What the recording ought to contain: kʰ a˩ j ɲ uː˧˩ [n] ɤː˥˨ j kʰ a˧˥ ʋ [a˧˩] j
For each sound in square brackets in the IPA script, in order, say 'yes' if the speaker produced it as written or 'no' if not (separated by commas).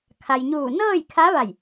yes, yes